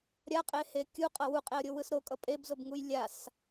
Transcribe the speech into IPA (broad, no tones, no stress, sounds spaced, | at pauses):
ɾʲ a qʼ e h e kʲ u qʼ ʌ w u qʼ e ə̯ ɾʲ o w ɯ s ɾ o kʼ ʌ pʼ e b z o b ŋ u j lʲ a s